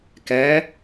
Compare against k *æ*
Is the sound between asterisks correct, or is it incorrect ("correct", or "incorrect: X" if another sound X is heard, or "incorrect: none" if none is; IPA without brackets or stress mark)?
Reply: incorrect: ɛ